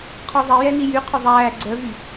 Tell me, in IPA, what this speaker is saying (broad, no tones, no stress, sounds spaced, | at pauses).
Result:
qʰ ɔ ðˤ ɛ j ɛ n i j y qʰ ɵ ðˤ æː ɡ͡ǀ œ v y